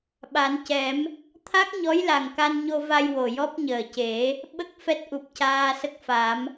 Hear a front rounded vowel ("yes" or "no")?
no